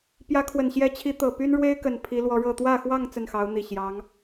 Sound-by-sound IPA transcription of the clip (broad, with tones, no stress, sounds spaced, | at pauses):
p j ä˧˥ kʰ w ə˨˩ n ɕ j ɛ˧˥ t͡ɕʰ i˧˥ t̪ ɤ˨˩ p y˥ n ɻ w e˥ ɪ̯ k ə˨˩ n pʰ i˧˥ l w ɔ˧˥ ɻ ɤ˥˧ t̪ w ä˥˧ x w ɑ˥˧ ŋ t͡s ə˥˩ n x ɑ˧˥ ʊ̯ n̪ i˨˩ ɕ j ɑ˧˥ ŋ